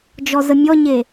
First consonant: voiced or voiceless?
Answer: voiced